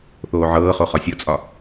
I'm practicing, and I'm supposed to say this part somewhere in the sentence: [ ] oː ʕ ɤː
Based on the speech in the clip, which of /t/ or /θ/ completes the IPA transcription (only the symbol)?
θ